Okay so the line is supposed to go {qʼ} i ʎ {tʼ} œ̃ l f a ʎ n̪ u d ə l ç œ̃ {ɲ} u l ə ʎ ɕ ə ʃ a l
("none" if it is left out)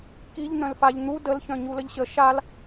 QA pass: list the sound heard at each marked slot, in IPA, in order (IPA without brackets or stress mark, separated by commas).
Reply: k, n̪, ɲ